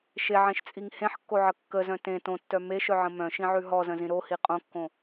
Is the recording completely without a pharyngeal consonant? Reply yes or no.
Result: no